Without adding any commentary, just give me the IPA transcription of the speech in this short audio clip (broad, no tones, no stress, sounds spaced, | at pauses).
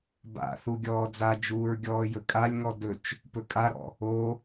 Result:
b a̰ θ u ɡʲ ɔː d͡z a d͡ʒ uː ɹ ɡʲ ɔː j ɵ kʼ a lʲ ŋ ɔ d ɵ t͡ʃ | p ɵ kʼ a ɾ ɔ̰ | o